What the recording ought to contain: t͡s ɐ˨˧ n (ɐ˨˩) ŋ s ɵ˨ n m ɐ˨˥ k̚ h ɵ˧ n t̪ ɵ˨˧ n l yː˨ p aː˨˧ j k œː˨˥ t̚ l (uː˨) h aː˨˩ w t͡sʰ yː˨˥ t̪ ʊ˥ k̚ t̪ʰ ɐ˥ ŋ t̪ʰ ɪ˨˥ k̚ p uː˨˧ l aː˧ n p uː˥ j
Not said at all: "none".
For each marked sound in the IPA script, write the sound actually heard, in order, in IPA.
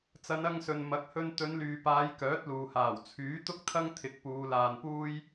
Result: ɐ˧, uː˨

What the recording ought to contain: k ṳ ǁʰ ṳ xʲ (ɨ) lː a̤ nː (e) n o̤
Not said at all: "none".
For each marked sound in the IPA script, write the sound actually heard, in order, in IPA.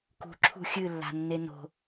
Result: ɨ, e

